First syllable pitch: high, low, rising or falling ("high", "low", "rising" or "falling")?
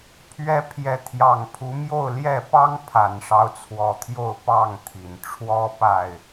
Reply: rising